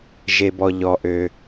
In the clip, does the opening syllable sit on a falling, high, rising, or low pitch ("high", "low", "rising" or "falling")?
low